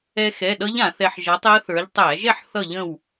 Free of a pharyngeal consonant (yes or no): no